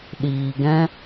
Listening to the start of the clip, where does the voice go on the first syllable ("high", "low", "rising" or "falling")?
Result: low